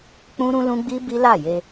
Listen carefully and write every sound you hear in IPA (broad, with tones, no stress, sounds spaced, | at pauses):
k͡p ũ˦ ɾ ũ˦ l ũ˦ ɡ͡b i˦ b i˦ l a˦˨ j e˧